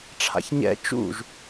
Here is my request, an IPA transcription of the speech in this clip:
ʈ͡ʂʰ a̰ ç ɲ ɛ̰ t͡ʃ ṵ ʒ

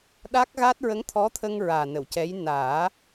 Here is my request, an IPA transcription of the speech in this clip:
ɗ a˦˥ k̚ ɣ a˦˥ t̚ ɹ ə˧˥ ŋ t̪ʰ ɔ˧˥ t̪ʰ ə˧ ŋ ɹ aː˨˩ n ə˨˩˨ w c ɛ˧˥ j n aː˨˩˦

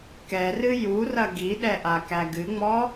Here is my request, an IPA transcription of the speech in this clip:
k ɛ r ɨ j u r ɐ ɡ i ɗ ɛ ʔ a k æ ɡ ɨ ŋ͡m ɔ

